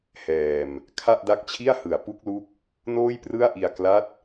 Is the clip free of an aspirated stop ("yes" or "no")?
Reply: no